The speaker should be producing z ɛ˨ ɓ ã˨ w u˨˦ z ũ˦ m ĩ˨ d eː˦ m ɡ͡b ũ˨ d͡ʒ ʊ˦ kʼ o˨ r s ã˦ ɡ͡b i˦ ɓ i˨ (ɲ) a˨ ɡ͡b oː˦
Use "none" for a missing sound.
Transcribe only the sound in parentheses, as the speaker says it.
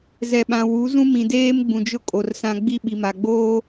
m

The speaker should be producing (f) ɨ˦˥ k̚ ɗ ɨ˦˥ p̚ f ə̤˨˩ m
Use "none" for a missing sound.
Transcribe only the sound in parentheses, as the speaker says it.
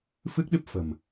f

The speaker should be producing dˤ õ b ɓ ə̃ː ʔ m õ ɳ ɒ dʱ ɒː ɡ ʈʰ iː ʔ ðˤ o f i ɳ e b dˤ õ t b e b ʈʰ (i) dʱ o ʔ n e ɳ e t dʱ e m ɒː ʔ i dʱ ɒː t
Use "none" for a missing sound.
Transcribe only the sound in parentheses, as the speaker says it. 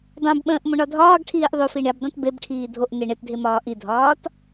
iː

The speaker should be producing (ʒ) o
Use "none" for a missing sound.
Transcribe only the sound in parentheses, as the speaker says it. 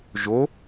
ʒ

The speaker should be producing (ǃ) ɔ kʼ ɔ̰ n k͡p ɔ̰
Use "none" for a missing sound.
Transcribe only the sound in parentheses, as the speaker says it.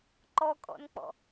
ǃ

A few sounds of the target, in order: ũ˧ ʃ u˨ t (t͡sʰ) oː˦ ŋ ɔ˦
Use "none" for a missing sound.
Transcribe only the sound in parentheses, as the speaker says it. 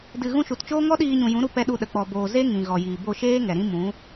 t͡ʃ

